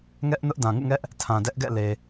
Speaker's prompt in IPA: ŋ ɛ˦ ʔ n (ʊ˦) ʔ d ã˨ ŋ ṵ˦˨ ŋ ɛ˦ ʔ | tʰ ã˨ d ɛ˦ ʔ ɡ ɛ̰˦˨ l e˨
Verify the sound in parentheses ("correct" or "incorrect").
correct